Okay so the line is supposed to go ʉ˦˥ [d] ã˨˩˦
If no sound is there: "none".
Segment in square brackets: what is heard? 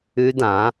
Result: d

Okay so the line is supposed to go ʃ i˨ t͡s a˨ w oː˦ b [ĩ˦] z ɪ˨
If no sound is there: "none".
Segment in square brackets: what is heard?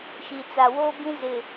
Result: ĩ˦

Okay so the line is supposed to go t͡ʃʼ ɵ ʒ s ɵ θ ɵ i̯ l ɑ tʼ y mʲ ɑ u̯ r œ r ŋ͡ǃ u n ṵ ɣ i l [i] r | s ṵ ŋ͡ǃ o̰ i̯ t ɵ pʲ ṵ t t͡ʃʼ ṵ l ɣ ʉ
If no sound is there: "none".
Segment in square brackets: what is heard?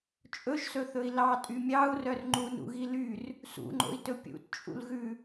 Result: y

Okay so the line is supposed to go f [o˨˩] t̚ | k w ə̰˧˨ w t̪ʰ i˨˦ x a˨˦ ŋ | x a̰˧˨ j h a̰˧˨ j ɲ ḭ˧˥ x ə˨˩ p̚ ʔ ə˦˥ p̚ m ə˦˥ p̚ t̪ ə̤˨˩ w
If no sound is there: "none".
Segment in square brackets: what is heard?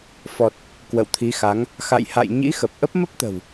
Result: ɔ˨˩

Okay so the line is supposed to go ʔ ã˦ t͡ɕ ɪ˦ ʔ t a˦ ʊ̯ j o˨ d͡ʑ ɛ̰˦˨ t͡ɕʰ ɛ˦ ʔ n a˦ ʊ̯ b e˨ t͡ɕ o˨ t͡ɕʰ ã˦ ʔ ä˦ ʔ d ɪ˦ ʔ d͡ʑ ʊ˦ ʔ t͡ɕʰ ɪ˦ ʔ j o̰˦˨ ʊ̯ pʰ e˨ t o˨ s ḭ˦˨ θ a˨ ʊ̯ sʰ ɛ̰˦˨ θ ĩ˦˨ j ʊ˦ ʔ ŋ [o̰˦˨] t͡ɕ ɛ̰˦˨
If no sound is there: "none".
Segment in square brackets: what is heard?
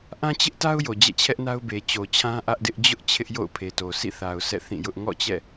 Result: ɔ̰˦˨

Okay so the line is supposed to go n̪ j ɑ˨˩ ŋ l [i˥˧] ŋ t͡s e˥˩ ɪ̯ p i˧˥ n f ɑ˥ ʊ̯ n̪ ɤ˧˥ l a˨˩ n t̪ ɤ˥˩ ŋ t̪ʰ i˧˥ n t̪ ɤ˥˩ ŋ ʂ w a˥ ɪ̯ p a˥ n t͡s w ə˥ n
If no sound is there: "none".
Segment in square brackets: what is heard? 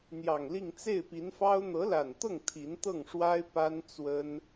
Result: i˥˧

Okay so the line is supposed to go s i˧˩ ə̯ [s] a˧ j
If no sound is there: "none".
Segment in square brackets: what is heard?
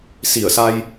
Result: s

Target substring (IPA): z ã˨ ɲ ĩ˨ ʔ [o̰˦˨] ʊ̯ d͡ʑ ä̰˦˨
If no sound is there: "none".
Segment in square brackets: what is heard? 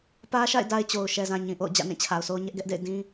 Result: o̰˦˨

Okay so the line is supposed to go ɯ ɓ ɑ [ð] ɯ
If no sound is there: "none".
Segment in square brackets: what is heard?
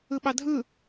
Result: dʱ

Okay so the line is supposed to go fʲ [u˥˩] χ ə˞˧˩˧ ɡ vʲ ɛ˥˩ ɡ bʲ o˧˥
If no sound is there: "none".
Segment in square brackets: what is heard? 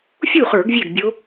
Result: u˥˩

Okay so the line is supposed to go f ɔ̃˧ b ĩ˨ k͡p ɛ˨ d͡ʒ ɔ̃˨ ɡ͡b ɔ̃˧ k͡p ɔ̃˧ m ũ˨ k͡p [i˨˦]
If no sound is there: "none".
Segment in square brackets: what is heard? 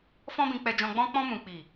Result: i˨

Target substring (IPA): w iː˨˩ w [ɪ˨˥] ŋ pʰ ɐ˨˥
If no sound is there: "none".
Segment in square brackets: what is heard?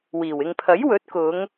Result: ɪ˨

